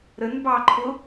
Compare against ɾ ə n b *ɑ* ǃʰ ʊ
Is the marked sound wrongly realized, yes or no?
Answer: no